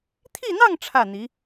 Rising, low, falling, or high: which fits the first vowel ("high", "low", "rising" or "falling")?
falling